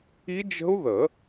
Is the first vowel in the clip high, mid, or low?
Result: high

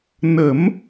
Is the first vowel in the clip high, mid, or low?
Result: mid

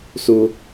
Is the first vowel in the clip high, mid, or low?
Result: high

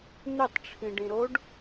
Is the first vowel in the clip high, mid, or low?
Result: high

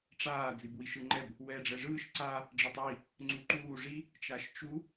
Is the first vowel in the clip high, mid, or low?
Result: low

